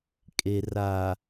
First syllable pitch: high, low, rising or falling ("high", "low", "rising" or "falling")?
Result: low